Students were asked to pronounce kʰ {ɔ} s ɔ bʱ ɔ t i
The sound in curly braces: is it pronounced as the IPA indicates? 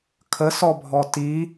no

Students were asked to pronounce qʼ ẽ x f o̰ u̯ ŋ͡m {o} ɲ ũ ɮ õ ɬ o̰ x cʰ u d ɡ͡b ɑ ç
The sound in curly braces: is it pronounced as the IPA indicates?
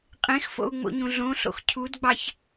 no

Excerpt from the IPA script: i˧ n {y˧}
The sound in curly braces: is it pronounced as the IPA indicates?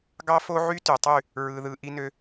no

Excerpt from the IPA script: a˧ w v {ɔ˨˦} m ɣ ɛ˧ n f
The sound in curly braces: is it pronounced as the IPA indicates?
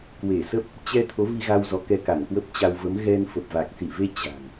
no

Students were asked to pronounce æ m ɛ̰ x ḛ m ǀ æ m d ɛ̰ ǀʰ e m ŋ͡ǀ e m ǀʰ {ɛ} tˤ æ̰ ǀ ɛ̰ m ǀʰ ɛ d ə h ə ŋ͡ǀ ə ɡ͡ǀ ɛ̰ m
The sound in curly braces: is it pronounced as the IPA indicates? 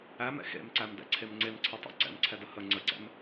no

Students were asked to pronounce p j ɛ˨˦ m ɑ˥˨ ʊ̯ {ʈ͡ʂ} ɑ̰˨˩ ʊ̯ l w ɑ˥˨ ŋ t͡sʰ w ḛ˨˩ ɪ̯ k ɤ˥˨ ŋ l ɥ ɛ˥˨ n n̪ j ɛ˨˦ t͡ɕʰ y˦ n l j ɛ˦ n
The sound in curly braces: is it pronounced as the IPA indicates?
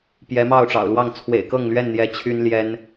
yes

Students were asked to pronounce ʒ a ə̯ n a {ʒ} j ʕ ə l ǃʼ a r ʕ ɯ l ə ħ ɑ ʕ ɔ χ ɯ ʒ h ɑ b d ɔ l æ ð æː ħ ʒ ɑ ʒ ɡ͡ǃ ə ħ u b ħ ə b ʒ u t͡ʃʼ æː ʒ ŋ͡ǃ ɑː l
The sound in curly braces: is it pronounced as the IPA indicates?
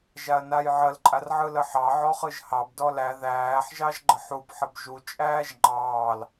no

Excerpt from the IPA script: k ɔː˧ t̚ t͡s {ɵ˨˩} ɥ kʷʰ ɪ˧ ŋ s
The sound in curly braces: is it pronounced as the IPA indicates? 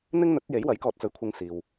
no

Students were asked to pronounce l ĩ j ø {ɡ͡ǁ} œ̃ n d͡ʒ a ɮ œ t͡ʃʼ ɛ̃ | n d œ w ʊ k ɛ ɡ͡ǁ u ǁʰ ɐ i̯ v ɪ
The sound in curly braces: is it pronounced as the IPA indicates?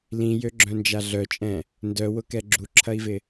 yes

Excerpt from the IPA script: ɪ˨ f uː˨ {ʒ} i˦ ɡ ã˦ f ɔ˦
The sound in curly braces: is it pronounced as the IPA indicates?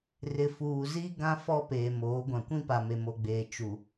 no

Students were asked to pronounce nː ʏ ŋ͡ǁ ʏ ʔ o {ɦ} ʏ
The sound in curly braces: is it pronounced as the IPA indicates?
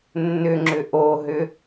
yes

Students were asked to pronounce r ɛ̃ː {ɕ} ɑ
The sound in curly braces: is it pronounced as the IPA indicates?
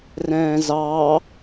no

